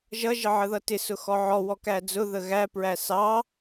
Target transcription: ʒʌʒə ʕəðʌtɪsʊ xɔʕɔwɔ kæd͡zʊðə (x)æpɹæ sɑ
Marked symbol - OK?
no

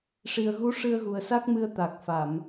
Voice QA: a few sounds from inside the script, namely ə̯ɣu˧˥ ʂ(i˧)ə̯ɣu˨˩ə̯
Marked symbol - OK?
no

